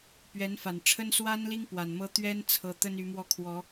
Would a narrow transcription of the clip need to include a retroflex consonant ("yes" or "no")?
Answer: yes